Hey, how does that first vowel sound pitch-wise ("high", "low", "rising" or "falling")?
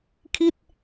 falling